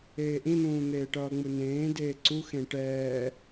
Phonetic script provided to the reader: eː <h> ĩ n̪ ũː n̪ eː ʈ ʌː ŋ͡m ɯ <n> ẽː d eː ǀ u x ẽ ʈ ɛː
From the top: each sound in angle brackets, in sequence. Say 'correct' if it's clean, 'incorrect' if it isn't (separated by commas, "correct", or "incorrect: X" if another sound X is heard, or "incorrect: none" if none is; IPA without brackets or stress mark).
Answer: incorrect: ʔ, correct